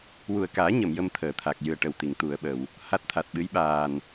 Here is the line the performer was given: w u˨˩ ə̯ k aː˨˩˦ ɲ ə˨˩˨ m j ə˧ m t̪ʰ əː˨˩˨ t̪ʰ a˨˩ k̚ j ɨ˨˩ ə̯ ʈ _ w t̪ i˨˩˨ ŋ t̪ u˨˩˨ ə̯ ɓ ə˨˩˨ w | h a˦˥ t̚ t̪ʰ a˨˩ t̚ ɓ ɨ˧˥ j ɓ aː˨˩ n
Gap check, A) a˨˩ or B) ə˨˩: B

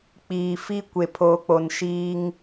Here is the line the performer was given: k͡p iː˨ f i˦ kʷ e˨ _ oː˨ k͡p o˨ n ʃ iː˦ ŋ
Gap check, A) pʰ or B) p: A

